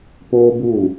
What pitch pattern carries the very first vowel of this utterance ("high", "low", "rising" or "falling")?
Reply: high